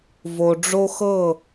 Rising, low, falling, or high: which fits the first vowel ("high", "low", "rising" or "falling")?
low